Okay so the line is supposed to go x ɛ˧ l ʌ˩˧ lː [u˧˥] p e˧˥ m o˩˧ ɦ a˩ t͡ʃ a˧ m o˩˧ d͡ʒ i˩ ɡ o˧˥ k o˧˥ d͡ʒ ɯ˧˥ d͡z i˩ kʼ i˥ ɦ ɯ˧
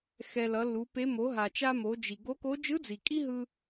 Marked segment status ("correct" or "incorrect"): incorrect